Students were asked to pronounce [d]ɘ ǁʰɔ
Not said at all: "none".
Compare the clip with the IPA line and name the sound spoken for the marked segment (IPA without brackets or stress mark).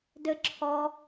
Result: d